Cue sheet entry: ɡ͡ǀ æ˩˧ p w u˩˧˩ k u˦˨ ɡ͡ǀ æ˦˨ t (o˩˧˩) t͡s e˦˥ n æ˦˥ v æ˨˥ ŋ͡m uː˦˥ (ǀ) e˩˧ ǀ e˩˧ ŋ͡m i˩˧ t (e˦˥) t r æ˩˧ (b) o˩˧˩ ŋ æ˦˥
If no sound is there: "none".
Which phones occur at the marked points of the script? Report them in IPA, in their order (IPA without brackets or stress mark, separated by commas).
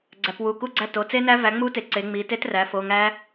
o˩˧˩, t, e˦˥, f